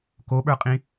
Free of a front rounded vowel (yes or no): yes